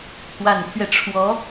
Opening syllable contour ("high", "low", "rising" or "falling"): low